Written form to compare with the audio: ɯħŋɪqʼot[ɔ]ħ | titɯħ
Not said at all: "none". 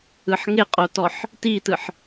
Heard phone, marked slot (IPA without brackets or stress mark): ɔ